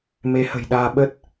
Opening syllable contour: rising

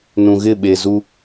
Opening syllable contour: low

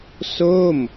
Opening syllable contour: falling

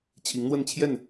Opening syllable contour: rising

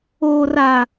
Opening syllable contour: low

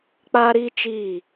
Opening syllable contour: high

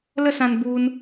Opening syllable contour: falling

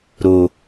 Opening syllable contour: low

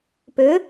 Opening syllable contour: rising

